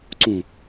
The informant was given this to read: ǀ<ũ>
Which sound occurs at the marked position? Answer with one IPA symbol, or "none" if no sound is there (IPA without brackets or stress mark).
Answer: ũ